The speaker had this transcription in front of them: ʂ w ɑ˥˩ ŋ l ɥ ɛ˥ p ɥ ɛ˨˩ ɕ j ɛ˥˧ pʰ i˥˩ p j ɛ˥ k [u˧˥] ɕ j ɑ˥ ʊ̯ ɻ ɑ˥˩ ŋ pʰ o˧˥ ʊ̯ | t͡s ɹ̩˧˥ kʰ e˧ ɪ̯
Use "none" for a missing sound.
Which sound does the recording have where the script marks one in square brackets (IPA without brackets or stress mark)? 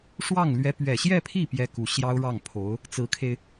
u˧˥